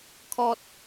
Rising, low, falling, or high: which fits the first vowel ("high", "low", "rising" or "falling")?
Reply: high